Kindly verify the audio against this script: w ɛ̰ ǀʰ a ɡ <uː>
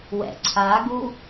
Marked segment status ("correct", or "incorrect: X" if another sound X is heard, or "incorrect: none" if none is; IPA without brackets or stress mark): incorrect: u